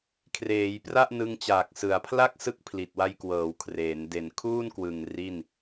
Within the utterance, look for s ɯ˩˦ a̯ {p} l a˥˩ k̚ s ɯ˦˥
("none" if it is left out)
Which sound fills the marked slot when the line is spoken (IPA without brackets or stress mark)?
pʰ